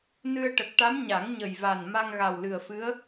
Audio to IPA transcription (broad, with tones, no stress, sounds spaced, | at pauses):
n ɨ˧ ə̯ ʈ ə˨˩ k̚ ʈ a˧˥ m ɲ a˨˩˦ ŋ ɲ ə˨˩ j v a˨˩ n m a˧ ŋ ɣ a˨˩ w l ɨ˨˩ ə̯ f ɨ˧˥ ə̯